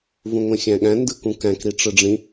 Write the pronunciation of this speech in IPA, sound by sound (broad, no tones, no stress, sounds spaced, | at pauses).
v ũ ŋʷ ẽ xʲ æ̃ ɠ æ̃ n d ɯ k ũ k æ̃ k ɾ i ʈ͡ʂ ɯ ɖ͡ʐ ĩ